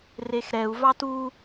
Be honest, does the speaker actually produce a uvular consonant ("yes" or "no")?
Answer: no